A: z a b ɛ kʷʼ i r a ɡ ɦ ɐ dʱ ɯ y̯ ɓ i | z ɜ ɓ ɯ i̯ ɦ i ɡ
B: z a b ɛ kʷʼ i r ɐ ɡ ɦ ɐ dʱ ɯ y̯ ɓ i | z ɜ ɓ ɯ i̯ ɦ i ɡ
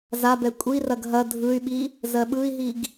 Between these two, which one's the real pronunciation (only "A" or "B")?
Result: B